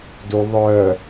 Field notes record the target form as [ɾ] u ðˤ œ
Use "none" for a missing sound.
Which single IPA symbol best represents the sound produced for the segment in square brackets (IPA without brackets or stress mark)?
d